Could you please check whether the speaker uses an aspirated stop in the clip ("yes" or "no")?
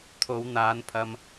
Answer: yes